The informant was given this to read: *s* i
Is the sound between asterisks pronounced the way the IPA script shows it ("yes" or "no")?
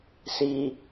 yes